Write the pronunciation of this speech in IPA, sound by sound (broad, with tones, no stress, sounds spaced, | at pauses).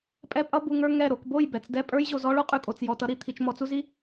pʼ ɛ˧ pʼ ʌ˧ b u˨ ŋ ə˞˧ ŋ ɛ˦˨ ɾ o˧ k b o˦˨ j b ɛ˨ t͡s d ɛ˦ pʼ ə˞˦ j ʑ o˧ z ɔ˦ ɭ o˦ qʼ ʉ˨ kʼ o˨ t͡s j ɔ˨ t ʌ˦ ɾ i˧ t̪ʰ i˧ t͡ʃ m ɔ˧ t͡s u˦ z i˦